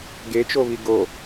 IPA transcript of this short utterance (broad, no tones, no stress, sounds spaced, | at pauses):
ɡ e t͡ʃ o β i ɡ o